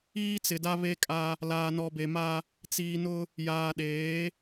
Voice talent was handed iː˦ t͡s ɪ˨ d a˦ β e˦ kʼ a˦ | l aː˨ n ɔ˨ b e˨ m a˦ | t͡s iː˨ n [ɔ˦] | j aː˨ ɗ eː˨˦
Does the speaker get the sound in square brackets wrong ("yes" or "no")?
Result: yes